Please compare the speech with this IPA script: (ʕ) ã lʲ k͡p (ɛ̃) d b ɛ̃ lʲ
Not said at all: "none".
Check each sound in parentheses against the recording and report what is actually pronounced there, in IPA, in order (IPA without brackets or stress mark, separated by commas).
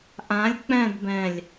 ʔ, ɛ̃